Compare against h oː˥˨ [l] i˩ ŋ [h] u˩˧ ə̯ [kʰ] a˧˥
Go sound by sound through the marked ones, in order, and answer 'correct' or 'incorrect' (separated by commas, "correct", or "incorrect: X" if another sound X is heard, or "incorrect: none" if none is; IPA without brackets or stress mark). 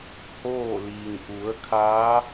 correct, incorrect: ʔ, correct